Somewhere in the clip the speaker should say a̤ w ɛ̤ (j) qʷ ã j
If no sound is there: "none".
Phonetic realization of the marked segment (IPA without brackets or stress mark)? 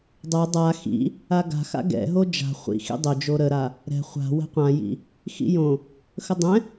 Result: none